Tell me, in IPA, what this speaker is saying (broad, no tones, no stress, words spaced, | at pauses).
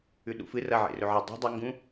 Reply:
ʉɗṵfɨ rɐ ʕḛrɵʕɐ dˤṳ dˤɐŋɡũ